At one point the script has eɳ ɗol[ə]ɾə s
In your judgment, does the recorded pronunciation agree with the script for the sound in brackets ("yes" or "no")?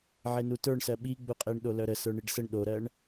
no